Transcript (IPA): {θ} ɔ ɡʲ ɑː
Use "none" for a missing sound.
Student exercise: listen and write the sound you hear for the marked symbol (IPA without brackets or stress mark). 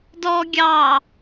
d